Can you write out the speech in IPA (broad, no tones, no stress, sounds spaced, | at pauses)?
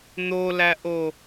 n̪ o l æ ʔ o